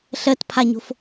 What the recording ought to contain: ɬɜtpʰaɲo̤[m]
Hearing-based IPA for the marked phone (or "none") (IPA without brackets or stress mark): f